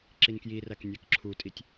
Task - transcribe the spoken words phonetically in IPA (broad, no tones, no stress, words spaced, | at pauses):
ǁinkjiræk nʲækǁʰutʼitʲ